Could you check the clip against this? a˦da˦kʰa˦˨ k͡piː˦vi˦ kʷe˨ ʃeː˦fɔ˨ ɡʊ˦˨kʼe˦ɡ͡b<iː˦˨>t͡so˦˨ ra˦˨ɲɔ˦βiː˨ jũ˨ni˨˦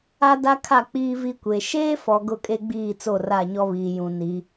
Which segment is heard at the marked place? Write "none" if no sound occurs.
iː˦˨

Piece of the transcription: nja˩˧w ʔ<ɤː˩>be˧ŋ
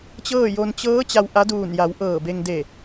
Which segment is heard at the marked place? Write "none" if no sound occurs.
ɤː˧˩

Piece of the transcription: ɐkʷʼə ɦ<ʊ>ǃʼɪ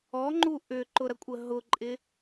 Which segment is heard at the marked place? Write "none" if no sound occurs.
ʊ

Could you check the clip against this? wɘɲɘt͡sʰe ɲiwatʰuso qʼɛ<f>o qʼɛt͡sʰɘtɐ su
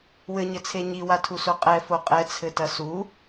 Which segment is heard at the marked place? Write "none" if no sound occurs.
f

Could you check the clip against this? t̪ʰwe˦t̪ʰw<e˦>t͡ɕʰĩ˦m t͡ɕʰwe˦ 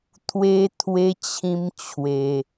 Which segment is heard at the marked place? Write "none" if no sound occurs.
e˦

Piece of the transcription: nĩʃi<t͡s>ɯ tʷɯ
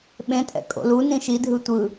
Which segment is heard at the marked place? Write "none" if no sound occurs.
dʱ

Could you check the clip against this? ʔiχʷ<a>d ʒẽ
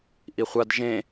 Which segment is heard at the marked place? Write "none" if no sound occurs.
a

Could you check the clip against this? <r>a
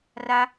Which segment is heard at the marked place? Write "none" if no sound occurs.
r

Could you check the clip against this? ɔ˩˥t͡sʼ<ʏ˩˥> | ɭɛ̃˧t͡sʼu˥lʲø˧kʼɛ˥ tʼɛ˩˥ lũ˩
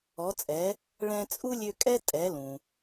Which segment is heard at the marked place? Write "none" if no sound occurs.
ɛ˩˥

